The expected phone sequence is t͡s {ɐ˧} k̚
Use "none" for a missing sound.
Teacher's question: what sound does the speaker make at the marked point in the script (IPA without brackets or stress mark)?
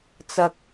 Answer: ɐ˧